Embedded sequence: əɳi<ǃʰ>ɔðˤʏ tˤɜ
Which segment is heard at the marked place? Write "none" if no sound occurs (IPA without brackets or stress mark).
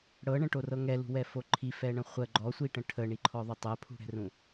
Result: ǃʰ